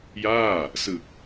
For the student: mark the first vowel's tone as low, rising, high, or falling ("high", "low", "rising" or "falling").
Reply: falling